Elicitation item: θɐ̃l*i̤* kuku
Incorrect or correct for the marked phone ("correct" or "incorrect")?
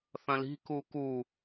correct